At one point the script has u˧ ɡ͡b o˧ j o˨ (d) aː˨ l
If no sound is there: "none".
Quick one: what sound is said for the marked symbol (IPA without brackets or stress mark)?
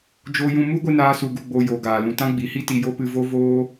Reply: ɡ